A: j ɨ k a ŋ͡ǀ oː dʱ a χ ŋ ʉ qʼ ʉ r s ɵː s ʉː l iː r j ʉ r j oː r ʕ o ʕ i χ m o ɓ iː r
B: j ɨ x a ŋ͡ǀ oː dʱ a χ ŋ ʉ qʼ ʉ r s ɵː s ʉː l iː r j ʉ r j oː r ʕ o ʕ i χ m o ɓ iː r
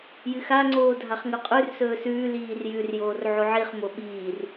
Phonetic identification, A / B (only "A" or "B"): B